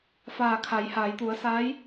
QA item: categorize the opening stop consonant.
aspirated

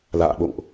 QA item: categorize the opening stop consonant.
implosive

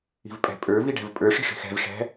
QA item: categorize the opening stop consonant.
ejective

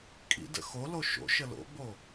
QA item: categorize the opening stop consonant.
ejective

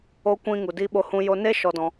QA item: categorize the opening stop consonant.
plain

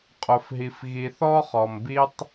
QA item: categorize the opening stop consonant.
ejective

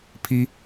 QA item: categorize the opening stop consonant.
aspirated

